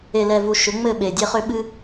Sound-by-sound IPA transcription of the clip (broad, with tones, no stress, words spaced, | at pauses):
e˨lɛ˨vu˨ ʃʏ˨˦ŋ͡mɘ˦˨ ɓe˨dʲe˦χʏ˦ ɓɨ˦